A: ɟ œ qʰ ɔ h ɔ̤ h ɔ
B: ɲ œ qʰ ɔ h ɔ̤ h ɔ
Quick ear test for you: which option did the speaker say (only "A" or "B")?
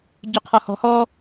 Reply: A